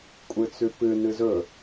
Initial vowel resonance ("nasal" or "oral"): oral